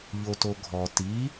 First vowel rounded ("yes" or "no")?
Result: yes